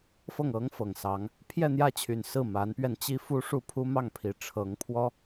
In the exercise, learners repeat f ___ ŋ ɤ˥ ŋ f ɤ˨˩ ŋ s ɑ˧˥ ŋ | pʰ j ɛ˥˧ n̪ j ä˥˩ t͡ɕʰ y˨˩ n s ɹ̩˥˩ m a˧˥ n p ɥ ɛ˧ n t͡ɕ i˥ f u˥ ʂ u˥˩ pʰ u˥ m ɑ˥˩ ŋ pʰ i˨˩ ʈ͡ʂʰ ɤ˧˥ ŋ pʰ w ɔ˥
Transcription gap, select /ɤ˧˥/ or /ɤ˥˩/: ɤ˥˩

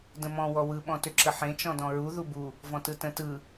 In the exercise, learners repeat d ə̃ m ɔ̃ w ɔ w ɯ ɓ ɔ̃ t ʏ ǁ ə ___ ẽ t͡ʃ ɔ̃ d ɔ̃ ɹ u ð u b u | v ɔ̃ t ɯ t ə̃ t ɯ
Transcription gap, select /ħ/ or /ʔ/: ħ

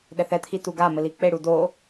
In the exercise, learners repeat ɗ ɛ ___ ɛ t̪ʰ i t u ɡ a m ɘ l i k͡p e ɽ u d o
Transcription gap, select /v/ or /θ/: θ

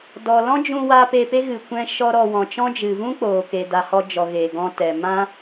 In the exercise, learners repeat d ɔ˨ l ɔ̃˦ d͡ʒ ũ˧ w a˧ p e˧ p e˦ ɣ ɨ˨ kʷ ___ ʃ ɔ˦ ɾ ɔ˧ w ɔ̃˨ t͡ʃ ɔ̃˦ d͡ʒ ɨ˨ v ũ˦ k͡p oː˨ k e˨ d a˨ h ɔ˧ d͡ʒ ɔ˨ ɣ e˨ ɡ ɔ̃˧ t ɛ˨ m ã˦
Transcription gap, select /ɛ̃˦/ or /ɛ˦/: ɛ̃˦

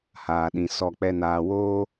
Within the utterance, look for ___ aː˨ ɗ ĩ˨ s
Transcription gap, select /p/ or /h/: h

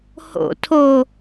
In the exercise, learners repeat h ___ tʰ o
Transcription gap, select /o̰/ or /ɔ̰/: o̰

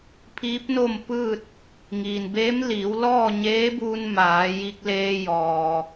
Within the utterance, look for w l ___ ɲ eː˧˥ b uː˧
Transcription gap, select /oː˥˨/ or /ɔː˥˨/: ɔː˥˨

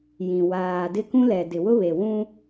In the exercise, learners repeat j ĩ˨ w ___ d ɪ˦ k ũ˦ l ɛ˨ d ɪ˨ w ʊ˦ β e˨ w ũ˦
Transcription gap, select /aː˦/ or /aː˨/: aː˨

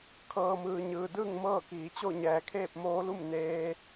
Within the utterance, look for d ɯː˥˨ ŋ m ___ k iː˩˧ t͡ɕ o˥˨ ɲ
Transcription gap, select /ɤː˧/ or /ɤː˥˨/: ɤː˥˨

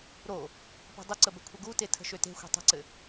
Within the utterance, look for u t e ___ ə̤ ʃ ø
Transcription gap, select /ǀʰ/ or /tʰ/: tʰ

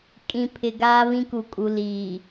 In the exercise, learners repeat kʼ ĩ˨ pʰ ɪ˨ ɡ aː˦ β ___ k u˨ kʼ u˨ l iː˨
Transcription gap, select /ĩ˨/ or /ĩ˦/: ĩ˦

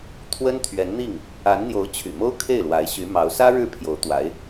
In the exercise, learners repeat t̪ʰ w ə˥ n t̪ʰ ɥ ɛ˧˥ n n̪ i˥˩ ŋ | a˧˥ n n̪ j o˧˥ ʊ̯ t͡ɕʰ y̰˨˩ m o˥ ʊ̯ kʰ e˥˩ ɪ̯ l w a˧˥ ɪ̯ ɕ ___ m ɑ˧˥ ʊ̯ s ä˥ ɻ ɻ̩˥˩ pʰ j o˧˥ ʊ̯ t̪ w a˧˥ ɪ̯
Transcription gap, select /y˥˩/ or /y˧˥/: y˧˥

